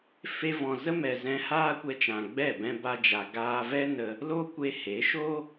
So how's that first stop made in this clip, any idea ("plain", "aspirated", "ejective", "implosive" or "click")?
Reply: plain